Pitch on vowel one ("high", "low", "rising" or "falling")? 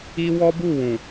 high